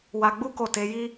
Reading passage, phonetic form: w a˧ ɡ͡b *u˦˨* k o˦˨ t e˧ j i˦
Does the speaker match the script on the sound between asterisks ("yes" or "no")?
no